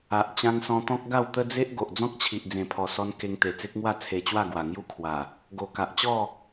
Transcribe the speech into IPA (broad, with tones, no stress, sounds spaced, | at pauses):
a˨ ʔ t͡ɕ ã˧ ŋ s ɔ̃˧ t̪ ɔ̃˦ k̚ ɡ a˥˧ w t̪ ə˦ d͡z e˦ ʔ ɡ o˨ ʔ d͡z ɔ̃˦ k̚ t͡ɕʰ i˨ ʔ d͡z ẽ˨˩ pʰ ɔ˨˩ s ɔ˧ n k e˧ ŋ t̪ e˨˩ t͡s e˦ k̚ ŋ w a˥˧ t͡sʰ e˧ t͡ɕ w a˥˧ ɡ w a˨˩ ŋ j u˥˧ kʰ w a˨˩ | ɡ o˨˩ k a˨ ʔ t͡ɕ ɔ˥˧